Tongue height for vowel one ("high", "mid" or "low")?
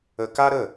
mid